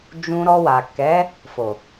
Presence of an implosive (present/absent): absent